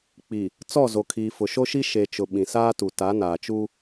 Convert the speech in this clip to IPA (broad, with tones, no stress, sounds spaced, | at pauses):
k͡p i˨ | t͡s ɔ˦˨ z o˨ kʰ iː˨ f ʊ˨ ʃ o˦ ʃ i˦ ʃ e˨ t͡ʃ ʊ˨ ɓ ĩ˨ s aː˦ t u˨ t a˨˦ n aː˨ t͡ʃ u˦